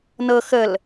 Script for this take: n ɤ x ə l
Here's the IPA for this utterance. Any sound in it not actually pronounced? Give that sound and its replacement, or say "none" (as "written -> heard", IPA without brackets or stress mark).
none